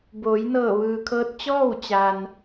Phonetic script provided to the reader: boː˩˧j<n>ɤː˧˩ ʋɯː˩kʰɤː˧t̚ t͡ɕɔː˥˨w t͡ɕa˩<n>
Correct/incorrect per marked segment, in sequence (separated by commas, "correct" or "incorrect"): correct, correct